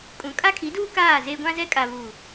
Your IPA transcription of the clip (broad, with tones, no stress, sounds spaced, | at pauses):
kʼ ũ˨˦ kʼ a˦ kʰ i˨˦ d uː˦ k aː˦˨ z eː˦ ɡʷ ã˦ z ɛ˦ kʼ a˨ β u˨